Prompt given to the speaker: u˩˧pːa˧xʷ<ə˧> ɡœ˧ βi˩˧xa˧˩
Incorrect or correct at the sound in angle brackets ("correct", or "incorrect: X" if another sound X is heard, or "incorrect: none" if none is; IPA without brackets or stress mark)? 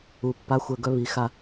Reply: incorrect: ə˧˩